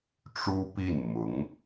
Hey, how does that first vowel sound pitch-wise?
high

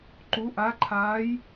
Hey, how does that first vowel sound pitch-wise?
rising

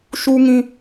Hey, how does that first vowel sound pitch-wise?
high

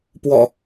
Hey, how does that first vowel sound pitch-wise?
low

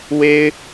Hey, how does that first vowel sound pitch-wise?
high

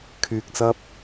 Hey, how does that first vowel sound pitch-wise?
low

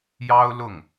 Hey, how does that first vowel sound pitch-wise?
high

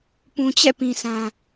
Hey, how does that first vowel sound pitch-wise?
low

